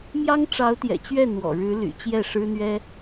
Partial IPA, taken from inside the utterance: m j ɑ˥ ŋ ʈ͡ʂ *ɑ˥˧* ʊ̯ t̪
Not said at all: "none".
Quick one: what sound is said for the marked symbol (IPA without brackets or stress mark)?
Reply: ɑ˧˥